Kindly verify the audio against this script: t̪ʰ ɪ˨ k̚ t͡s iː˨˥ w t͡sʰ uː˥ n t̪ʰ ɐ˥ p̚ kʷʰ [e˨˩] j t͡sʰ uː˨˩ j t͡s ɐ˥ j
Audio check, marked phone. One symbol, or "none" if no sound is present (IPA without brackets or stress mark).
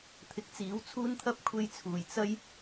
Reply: e˧